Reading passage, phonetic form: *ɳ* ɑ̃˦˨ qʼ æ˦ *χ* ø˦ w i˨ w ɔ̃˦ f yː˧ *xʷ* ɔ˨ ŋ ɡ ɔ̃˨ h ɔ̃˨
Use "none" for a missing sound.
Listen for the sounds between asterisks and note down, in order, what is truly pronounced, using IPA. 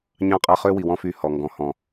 ɲ, χ, h

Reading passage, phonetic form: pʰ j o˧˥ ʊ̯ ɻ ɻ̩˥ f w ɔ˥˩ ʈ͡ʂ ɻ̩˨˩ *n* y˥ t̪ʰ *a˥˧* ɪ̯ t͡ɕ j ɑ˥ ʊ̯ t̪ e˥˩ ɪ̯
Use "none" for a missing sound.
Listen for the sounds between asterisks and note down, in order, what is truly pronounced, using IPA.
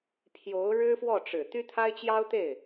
t̪, a˥

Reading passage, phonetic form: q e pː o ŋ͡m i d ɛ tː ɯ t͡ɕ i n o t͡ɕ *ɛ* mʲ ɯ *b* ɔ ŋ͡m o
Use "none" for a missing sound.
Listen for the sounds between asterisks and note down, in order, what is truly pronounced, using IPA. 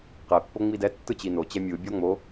ɛ, bʲ

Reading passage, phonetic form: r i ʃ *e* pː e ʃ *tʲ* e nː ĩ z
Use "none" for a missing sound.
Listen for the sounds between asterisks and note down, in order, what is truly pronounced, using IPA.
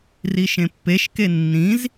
ẽ, k

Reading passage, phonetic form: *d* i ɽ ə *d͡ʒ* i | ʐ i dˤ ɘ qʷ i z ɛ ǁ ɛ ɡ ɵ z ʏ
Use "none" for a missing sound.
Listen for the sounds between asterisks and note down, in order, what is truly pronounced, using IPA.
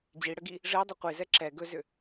d͡ʑ, ɡ

